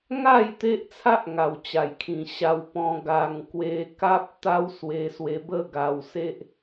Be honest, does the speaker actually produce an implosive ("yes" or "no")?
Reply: no